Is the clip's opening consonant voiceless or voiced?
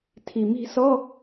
voiceless